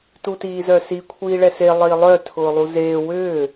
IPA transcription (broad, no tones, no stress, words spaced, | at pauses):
tutiːzœsi kʷʰiːɭɛse lˠiːlˠœ tʰʊːlˠuzeː wʏː